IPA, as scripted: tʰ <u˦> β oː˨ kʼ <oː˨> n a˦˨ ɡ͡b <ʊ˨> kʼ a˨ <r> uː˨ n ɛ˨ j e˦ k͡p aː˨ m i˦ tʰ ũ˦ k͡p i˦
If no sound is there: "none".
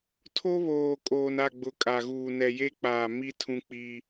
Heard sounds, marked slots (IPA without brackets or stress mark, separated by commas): o˦, oː˨, ʊ˨, ɣ